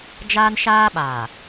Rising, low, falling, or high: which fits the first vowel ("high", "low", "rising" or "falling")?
high